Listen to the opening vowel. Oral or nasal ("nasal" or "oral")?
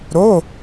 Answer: oral